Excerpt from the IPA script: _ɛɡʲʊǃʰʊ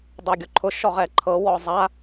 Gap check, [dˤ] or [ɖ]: dˤ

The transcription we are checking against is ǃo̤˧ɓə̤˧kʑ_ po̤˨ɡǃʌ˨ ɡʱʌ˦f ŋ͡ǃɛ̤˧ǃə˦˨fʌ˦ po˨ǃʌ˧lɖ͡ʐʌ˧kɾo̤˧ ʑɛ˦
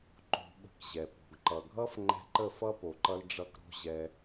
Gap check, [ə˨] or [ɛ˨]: ɛ˨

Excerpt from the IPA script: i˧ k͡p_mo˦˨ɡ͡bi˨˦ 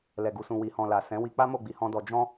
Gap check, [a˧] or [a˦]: a˦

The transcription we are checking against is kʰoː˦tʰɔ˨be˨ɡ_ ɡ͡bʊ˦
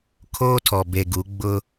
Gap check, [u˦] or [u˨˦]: u˨˦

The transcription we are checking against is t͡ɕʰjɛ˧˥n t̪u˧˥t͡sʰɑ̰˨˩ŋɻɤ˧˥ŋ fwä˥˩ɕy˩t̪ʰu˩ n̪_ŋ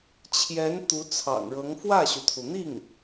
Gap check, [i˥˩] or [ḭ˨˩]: i˥˩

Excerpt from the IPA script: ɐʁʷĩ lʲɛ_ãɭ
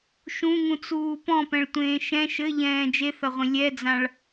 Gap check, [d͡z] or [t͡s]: d͡z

